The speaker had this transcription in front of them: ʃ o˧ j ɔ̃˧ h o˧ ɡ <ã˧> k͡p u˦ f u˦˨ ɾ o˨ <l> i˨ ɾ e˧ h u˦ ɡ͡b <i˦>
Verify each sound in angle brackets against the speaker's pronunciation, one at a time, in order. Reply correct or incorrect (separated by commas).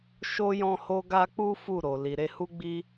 incorrect, correct, correct